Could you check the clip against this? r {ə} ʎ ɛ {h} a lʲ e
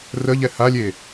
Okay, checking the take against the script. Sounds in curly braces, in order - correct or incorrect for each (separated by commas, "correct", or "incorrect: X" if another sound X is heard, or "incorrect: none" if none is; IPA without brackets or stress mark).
correct, correct